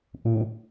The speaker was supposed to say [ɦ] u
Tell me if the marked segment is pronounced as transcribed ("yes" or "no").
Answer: no